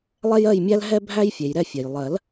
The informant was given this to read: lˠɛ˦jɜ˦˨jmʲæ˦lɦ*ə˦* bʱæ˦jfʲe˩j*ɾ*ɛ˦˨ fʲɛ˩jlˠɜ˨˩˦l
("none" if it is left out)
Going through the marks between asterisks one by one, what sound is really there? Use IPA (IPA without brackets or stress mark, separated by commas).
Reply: ɛ˦, ɾ